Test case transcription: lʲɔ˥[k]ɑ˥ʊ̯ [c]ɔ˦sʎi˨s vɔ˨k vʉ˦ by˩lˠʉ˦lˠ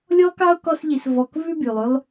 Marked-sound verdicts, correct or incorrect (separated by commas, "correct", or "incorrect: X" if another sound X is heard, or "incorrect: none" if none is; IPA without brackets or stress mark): correct, incorrect: k